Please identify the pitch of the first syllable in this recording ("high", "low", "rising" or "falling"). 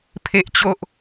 high